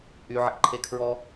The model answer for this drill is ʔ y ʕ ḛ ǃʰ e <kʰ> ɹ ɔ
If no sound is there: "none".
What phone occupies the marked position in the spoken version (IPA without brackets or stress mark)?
kʰ